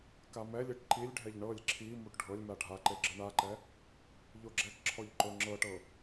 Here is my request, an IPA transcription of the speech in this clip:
k a m ɛ lʲ e ʈ ǃ i lʲ ɖʱ ɛ ʎ ɳ ɤ lʲ ǁʰ i m u ʈ ɖʱ ɤ lʲ m a ɖʱ a ǃ e ɡ͡ǁ ɯ ɳ a ǃ ɛ | ʎ o ɡ͡ǁ ɛ k ǁʰ ɔ ʎ ǃ o ŋ͡ǁ ɤ ʈ ɤ

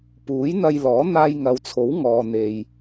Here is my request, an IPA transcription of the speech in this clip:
p uː˨˥ j n̪ ɐ˧ j l ɔː˨˥ n̪ aː˧ j ŋ ɐ˨˧ w t͡sʰ o˨˥ w ŋ ɔː˨ n̪ e˨ j

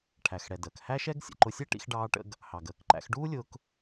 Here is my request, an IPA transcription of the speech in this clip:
ʈʰ æ˩ x ɽ ɛ˩ d əː˩ k h æ˥ ʃ ɛ˥ ɡ sʲ ə̰˩ ǃ ʊ˧ sʲ ɛ˥ ʈ ḭ˧ x ɖ ɑː˧ ʈ ə̰˧ ɡ | h ɑ˩ ɡ əː˩ k ǃ æ̰˧ x ɖ uː˥ lʲ ʊː˧ k

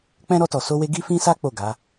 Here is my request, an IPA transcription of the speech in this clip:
k͡p ɛ̃˦ ɾ ɔ˧ t ɔ˨ s o˧ w e˧ ɡ i˦ f ĩ˦ s a˦ k͡p o˦˨ ɡ a˨˦

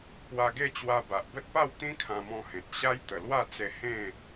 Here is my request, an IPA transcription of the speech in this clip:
k w a˧ ɡ e˥˧ t͡ɕ w a˧ b a˨ ʔ b ə˦ t̚ p a˥˧ w t̪ ĩ˦ kʰ ã˧ m ɔ̃˧ h ẽ˨ t̚ ɕ a˦ j t̪ ə˨˩ l w a˥˧ t͡s e˧ h ẽ˥˧

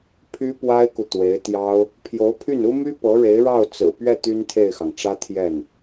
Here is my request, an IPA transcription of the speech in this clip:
pʰ y˥ p w a˥ ɪ̯ k u˨ t̪ w e˧˥ ɪ̯ t̪ j ɑ˥ ʊ̯ | pʰ j o˧˥ ʊ̯ pʰ y˥˩ n u˥ m y˥ p ɤ˧˥ ɻ e˧˥ ɪ̯ ɻ ɑ˥˩ ʊ̯ t͡s ɹ̩˨˩ p ɥ ɛ˥˩ t̪ y˥ n t̪ʰ e˥˩ ɪ̯ x ɑ˩ ŋ ʈ͡ʂ ä˥ t̪ʰ j ɛ˥˩ n

